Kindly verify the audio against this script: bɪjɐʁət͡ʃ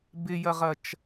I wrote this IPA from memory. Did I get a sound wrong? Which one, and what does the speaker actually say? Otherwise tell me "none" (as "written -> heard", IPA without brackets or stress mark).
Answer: ə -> ɐ